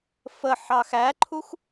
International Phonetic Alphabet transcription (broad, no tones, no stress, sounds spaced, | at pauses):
f ə ħ ɑ x æ ǃʰ u x